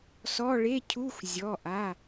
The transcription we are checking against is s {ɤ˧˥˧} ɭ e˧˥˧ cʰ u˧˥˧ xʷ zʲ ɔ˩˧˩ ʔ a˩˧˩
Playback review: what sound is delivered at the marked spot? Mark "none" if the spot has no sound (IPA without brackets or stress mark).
ɔ˧˥˧